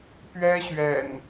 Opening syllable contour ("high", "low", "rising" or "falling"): high